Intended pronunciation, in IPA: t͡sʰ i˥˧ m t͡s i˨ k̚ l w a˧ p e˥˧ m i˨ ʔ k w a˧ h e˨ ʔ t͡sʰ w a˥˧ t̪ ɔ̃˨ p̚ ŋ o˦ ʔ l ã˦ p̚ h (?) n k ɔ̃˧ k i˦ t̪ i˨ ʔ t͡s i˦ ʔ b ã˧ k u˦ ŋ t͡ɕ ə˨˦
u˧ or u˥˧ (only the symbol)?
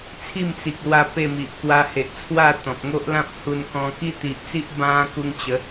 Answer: u˧